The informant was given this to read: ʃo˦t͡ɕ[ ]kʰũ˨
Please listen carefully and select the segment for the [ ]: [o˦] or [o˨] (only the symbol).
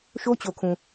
o˨